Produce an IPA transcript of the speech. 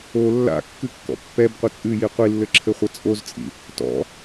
o lː a̰ kː ɨ kː ɔ̰ pː ɛ b qʷ ɘ t͡sʼ ɨ j i qʷ i lː ɘ ǁʰ ɘ χʷ ɐ t͡sʼ o z t͡sʼ ḭ | t ɔ̰

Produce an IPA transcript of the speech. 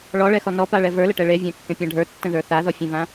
ɭ ɔ ɭ ɛ x ɔ n ɔ p a ɭ ɛ v ə˞ l ə ʈ ɛ ɭ e vʲ ã kː ẽ pʲ ã ɖʱ ə˞ tː ə̃ ð ə˞ θ a ð ɔ fʲ ɛ̃ v ã

